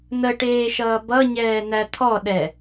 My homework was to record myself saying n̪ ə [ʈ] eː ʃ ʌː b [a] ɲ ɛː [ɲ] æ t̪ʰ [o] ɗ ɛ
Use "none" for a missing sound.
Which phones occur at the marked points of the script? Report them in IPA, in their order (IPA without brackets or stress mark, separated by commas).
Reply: ʈ, ʌ, n̪, ɔ